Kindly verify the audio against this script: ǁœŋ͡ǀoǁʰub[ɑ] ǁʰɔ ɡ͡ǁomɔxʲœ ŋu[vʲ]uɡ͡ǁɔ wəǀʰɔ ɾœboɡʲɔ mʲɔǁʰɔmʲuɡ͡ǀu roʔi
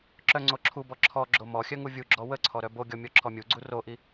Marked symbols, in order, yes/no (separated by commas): no, yes